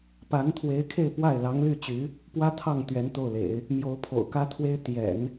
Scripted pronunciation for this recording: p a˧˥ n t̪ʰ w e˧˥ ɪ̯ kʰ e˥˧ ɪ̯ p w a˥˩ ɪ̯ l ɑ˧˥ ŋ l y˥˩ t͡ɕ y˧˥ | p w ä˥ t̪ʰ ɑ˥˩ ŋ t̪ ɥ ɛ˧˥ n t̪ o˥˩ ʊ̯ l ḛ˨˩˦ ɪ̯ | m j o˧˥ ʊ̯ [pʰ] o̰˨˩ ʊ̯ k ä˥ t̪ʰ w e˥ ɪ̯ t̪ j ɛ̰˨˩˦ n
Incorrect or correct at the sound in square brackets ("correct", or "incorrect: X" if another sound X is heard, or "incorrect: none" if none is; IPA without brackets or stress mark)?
correct